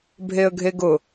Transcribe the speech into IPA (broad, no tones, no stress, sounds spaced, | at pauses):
bʱ e ə̯ ɡʱ e ɡ ʊ